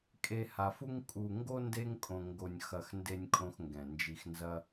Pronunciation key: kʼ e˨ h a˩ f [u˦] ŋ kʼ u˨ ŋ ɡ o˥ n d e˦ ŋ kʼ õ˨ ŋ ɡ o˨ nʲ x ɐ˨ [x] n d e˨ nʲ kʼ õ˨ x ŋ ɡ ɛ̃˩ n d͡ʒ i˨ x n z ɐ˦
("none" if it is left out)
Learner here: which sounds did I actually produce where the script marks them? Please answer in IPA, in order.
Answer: u˦, x

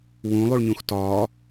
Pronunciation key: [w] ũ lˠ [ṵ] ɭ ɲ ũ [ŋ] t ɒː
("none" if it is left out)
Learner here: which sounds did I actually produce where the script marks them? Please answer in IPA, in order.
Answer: w, u, x

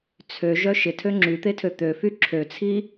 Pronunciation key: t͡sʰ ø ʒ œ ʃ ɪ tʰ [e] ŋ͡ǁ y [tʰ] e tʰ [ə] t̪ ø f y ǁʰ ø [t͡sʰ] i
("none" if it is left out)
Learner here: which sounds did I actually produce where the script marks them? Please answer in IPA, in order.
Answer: ø, t̪, ø, t͡sʰ

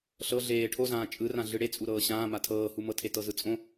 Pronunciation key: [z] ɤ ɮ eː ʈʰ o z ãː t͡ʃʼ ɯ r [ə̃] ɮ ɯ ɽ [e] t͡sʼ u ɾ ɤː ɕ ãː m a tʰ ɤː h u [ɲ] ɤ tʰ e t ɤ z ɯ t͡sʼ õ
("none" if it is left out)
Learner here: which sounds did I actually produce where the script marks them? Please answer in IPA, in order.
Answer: ɬ, ã, e, m

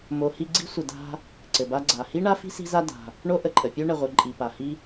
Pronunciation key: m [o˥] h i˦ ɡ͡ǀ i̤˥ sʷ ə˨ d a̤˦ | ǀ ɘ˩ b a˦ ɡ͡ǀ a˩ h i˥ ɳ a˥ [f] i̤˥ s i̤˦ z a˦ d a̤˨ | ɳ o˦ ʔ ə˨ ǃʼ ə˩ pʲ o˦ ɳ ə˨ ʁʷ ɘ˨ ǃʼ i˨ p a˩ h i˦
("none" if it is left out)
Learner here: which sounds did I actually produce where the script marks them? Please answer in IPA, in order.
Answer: o˨, f

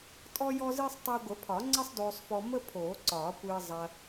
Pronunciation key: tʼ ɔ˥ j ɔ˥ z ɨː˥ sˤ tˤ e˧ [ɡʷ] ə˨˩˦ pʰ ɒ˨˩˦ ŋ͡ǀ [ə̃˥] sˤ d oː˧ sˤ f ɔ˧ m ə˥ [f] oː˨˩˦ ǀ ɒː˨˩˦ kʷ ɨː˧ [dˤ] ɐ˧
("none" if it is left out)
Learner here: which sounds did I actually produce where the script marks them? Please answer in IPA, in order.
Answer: ɡʷ, ə˥, pʰ, zˤ

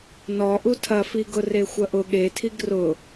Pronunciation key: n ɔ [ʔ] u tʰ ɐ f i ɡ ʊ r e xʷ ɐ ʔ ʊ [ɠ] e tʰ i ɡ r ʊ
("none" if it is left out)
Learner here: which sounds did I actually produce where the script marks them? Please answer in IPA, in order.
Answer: ʔ, ɠ

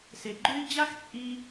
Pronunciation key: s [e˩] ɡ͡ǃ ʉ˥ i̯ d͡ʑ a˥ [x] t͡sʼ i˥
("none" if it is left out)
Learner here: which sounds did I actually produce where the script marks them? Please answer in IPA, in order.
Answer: e˩, x

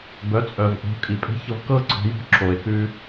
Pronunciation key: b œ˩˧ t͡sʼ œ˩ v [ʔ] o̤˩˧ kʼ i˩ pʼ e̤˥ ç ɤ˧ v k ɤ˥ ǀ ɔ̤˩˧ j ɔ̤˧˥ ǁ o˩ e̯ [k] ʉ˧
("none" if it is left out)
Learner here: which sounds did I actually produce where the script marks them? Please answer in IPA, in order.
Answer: ʔ, k

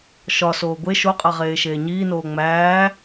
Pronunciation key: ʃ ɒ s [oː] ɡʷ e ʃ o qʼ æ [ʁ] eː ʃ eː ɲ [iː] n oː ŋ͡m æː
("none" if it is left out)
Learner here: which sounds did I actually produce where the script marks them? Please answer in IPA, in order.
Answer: oː, ʁ, iː

